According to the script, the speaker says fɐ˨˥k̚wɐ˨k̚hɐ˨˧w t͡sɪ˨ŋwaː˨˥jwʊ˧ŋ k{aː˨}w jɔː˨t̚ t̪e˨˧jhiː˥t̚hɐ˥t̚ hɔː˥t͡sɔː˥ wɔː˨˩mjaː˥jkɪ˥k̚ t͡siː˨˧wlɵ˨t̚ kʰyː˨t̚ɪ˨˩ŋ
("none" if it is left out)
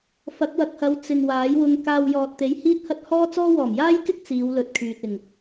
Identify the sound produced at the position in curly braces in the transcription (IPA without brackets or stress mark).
aː˧